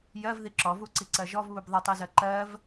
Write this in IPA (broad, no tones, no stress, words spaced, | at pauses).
jɜv ðiǁɔ vuǀiǀɜʒɔv βubðˤitˤ izɜǃɜv